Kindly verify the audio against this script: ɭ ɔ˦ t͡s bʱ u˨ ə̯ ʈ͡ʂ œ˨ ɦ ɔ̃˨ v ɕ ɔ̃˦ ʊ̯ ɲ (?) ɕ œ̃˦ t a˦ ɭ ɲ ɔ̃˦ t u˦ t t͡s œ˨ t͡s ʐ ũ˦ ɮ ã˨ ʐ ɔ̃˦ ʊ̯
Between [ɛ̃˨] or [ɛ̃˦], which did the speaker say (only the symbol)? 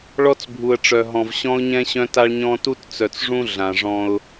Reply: ɛ̃˦